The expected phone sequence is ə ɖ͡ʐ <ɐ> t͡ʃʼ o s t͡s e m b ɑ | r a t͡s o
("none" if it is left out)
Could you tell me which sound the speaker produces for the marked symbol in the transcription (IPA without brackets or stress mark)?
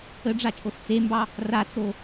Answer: a